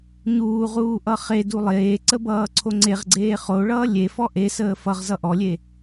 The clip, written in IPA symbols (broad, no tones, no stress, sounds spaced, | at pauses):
ɲ uː ʁ uː ʔ ʌ χ e d u lˠ eː ǀ ə b ʌː ǀʰ o ŋ͡ǀ e ʁ ɡ͡ǀ eː χ o ɭ ʌː lʲ e f ɔ ʔ e s əː f ʌ ʁ z ʌ ʔ ɔ lʲ e